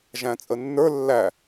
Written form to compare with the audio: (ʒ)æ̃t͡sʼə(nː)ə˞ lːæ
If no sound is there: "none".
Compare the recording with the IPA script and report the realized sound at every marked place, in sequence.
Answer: ʒ, nː

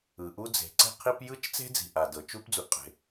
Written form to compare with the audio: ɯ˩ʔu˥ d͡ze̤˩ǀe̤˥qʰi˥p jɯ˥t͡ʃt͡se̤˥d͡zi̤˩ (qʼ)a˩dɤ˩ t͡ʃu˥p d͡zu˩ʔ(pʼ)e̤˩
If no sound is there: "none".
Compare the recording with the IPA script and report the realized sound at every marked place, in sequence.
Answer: ʔ, qʼ

